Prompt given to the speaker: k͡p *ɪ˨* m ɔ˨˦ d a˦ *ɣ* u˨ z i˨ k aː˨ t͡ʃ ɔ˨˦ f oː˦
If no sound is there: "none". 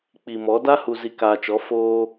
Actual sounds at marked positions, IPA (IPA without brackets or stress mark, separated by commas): i˨, h